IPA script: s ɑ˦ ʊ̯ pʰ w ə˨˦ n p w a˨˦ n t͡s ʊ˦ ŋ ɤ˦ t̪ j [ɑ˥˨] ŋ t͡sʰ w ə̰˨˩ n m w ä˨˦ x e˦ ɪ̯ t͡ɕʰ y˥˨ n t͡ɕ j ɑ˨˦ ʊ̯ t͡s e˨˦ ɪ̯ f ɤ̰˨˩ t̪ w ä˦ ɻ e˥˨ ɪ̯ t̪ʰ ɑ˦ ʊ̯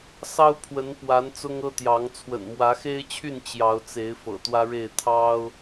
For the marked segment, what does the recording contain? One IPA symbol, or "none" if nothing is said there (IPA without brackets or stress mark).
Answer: ɑ˨˦